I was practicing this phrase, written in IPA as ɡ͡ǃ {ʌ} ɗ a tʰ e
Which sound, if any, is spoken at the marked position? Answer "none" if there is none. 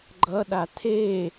ʌ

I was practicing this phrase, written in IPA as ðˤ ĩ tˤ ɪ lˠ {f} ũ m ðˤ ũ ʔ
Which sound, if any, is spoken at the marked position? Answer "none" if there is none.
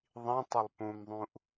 p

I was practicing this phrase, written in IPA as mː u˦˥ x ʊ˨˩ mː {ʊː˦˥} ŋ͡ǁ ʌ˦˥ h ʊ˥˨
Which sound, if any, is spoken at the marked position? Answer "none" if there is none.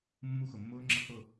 ʊː˦˥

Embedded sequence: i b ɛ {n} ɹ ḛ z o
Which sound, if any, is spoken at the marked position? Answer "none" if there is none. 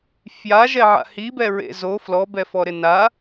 none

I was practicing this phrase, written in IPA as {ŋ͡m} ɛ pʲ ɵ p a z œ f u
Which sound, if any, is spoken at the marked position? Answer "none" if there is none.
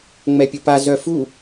ŋ͡m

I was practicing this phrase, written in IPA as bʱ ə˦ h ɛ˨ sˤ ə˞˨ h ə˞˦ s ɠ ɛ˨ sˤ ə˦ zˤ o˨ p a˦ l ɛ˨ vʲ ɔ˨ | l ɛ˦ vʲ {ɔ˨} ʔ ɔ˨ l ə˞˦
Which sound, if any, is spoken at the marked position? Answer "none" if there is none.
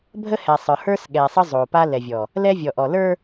ɔ˨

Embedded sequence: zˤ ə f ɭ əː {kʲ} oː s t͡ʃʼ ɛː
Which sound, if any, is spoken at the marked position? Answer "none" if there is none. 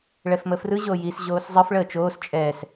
t͡ʃ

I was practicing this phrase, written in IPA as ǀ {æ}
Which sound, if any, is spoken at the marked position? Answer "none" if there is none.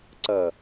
ɐ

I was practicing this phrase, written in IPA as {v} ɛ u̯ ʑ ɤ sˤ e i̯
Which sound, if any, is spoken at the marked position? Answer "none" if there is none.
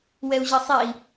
w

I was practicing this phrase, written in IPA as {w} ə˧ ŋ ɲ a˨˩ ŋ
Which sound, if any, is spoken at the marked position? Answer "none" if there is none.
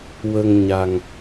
w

